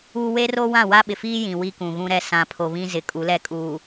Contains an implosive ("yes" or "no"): yes